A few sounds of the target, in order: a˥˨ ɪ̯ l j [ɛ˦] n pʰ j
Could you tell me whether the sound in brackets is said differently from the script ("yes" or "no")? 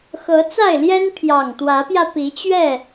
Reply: no